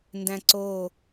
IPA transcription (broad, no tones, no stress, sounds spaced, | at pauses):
n d æ̃ ǀ o